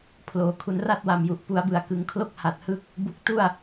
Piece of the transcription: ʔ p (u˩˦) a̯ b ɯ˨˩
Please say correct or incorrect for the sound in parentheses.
correct